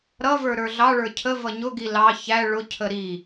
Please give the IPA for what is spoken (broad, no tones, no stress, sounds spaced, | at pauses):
ɾ ʌ v ə˞ ɾ ə˞ ɮ ɑ ɭ ə˞ cʰ ə v ʌ ɲ ʊ ɡ i l ɑ ç æ ɭ ʊ cʰ ə ɾ i